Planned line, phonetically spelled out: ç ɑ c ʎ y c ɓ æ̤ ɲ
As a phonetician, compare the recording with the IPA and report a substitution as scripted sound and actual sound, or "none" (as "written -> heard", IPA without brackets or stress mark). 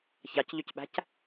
ɲ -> c